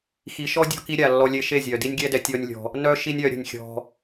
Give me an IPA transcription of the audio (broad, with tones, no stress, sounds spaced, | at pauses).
x i˨ ʃ ɔ˦ dʲ ɔ̤˧ k i˧ ɾʲ a˨ lː ɔ˧ lʲ e˧ ʃ e˦˨ zʲ œ˨ d i˦ nʲ ɡʲ ɛ˦ d ɛ˧ tʲ ɔ˦ nʲ lʲ ɔ̤˧ | n œ˦ ʃ i˦ nʲ œ˧ ɾʲ ə̤˧ nʲ xʲ ɔ̤˧